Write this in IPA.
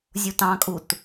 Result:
zʲutɑ̃kʼut

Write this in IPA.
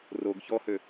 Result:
roɡ çɔhø

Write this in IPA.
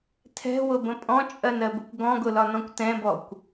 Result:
tʰɛ̤wʊbə̃ pʼɔ̃t͡ʃʼɜnɜbəkʷ ɡɔ̃ɡʊlɒ nɔ̃kʷtɛ̃bɔkʷ

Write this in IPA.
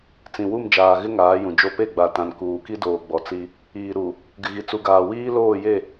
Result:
t͡sĩ˨wu˦˨m d͡ʒaː˨ɣɪ˦ ŋaː˨˦jũ˨d͡ʒo˦ pe˦˨ɡ͡ba˨tã˨n kuː˨ki˦doː˨ ɡ͡bɔ˨t͡si˦ | iː˨ɾu˨ | ɡɪ˨ɣi˨t͡su˨ɡaː˨ wiː˦loː˦˨je˦˨

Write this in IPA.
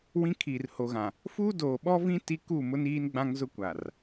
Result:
wĩ˦kʰiː˨rho˨ɣã˨ | fuː˦doː˨ɓɔ˦vĩ˦ ti˦ ku˦˨mʊ˦niː˦n ɡ͡bã˦ŋzʊ˦kʷa˨r

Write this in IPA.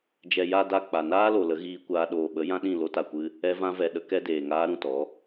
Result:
d͡ʒɛ˨ ja˨da˨ k͡pa˨naː˦lo˨ lə˨˦ɣiː˧kʷaː˧ ɗoː˨ɓə˨˦ jã˦ɗĩ˦˨ lo˧ta˨kʷɨ˧ | ɛ˧vã˧ vɛ˨ ɗə˧kɛ˧ deː˨ŋaː˧ɾũ˨tɔ˨˦

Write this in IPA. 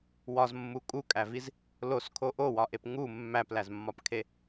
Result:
wɒzmːu kʼukʼæviz | loskʰo ʔowɒʔep ŋu mːæplæzmːɒpkʰe

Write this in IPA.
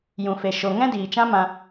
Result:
jũ˨fe˨ ʃo˨ ŋɛ̃˦diː˨t͡ʃã˦mã˧

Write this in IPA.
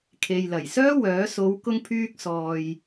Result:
kʰe˨jlɐ˨˩jsœː˥wœː˨˥ so˨˧wkʊ˧ŋpʰyː˧k̚sɔː˨j

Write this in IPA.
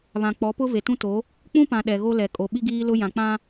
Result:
βã˨k͡pɔ˨˦pʊ˦ ve˨tũ˦to˨˦ | k͡pũ˦pã˨ ɗɛ˨ɣo˦lɛ˨ kʼo˨ ɓi˦ɡiː˦lʊ˦ jã˨k͡pã˦

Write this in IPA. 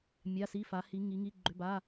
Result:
mʲa˧˥˧si˧˥˧fa˨˦hi˨˦ ŋi˨˦ŋi˧˥˧ɡ͡ǃʏ˧˥˧ba˧˥˧

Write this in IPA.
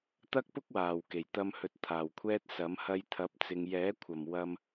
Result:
t̪ɐ˥k̚pʊ˥k̚ waː˨˩wke˨˩jt̪ɐ˧mhɵ˨˥t̚ t̪ʰaː˨˩wkʷʰɛː˥t̚sɐ˨˥m hɐ˧jt̪ʰɐ˨˥p̚t͡sɪ˨ŋ jɛː˨˥ kʷʰɐ˨˩m wɐ˧m

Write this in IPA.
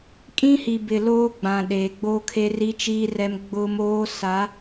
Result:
kʼĩ˦hi˨ bɪ˨ loː˦ɡ͡bã˨ ɗeː˨ɡ͡boː˦kʰe˦ ri˦ t͡ʃiː˦rɛ˦m ɡ͡bʊ˦moː˦ sa˨˦

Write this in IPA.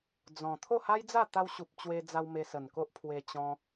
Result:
d͡zɔ̃˨˩ t̪ʰo˥˧ha˦jd͡za˥˧ t̪a˧wɕu˨p̚ t͡ɕwe˧d͡za˧w me˧sə˨˩nko˦ʔ pʰwe˧ t͡ɕɔ̃˧

